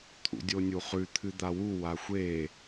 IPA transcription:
t̪ʰ ṵ dʲ o nʲ u χ ʉ t̪ʰ ɨ d̪ a w u w a xʷ e

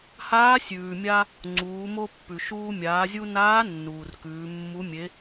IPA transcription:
h aː˧˥ sʲ ʉː˩ mʲ a˧ | ŋ͡ǀ uː˩˧ m o˧ pː ʉ˩ ʃ uː˧ mʲ aː˩˧ zʲ u˧ n aː˧˥ nː uː˩ r k ʉː˩˧ mː u˧˥ mʲ e˧˥

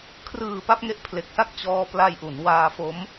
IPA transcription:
kʰ r ɯː˨˩ p a˥˩ p̚ ŋ e˦˥ ʔ pʰ l e˨˩ k̚ s a˥˩ k̚ t͡ɕ ɔː˧ p l a˧ j ʔ u˩˦ n w aː˧ f o˦˥ m

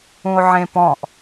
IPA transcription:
ũ o̯ ʕ ẽ p ɔ̃ ʔ

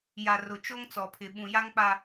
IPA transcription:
j a˨ r ʊ˨ t͡ʃ o˦ ŋ t͡s ɔ˨ pʰ ɪ˨ ɓ ũ˨ j a˦ ŋ k͡p a˦

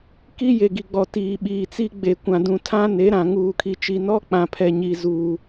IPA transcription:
k i˦ j e˨ ɡ i˨ ɡ͡b ɔ˨ t iː˨ ɓ iː˨ t͡s i˦ ɡ͡b e˨ kʷ ã˨ d ũ˨ tʰ ã˦ n e˨˦ ɾ ã˨ ŋ uː˨ kʰ i˨ t͡ʃ i˨ n ɔ˦ k͡p ã˨ pʰ ɛ˨ ɲ i˨ z uː˨

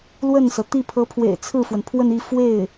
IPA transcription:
l w ə˥˩ n s ɤ˩ t̪ i˥˩ pʰ ɤ˧˥ pʰ w ḛ˨˩ ɪ̯ t͡sʰ ɹ̩˥˩ f w ə˩ n pʰ w ə˥˧ n i˥˧ f w e˥˩ ɪ̯

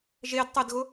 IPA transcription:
ʒ e d tˤ ɪ d ɣ ʊ

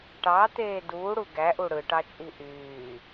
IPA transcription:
ʈ ɑ t̪ eː d uː ɽ u ɡ æ ʔ u ɽ ɯ ʈ ɑ t͡ʃʼ i ʔ yː

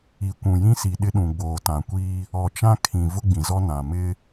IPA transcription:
i˨ kʷ ũ˨ j ĩ˦ s i˨ ɗ ɪ˦ ɗ ũ˨ ɡ͡b oː˨ t ã˨ kʷ iː˦ | ɔ˨ t͡ʃ ã˦ kʰ ĩ˨ v ʊ˦ ɡ͡b ĩ˨ z ɔ˦ n ã˨ m ɪ˦

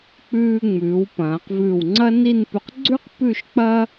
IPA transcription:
k͡p ʉː˧ ŋ͡m ʉː˩˧ w p ɐ̃ː˩˧ q v ʉ˧˩ w ŋ͡ǀ ɐ˥ n i˥˧ n p ʉ˧ q ɡ͡ǀ ʉ˥ q p ʉ˥˧ ʃ k͡p ɐ˥

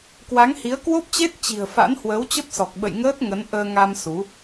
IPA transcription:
k w a˨˦ ŋ h i˨˦ ə̯ k w o˦˥ p̚ t͡ɕ e˦˥ t̚ t͡ɕ i̤˨˩ ə̯ f a̰˧˥ n h w əː˨˦ w t͡ɕ ə˦˥ p̚ s ɔ˨˩ k̚ ɓ ə̰˧˨ j ŋ əː˦˥ t̚ ŋ ə˨˦ n ʔ əː˧ ŋ a˧ m s u˨˦

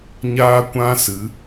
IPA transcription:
ɲ aː˦ kʷ ã˦ s ɨ˨˦

